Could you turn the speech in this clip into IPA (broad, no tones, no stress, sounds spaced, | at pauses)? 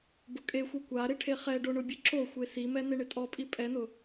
b ʊ kʼ e xʷ e kʷ a ɾ ɪ ʈʰ e χ ɛ ɖ o ɳ ʊ bʲ ʊ ǁ o xʷ e s i m ɛ n e ɳ ɪ tʼ ɔ pʼ i pʼ ɛ n ʊ